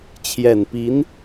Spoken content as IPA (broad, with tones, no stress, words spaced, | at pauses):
t͡ɕʰjɛ˨˩npi˧˥n